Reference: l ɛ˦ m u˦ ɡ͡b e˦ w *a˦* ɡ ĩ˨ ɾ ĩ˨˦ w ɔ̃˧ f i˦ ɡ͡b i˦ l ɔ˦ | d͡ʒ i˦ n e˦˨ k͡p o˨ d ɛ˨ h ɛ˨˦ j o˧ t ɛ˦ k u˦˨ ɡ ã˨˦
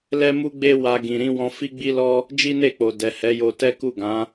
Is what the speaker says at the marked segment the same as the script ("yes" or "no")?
no